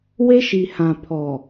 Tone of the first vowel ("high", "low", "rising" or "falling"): high